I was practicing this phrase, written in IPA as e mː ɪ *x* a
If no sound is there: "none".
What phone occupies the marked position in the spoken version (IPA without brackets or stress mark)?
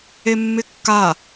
kː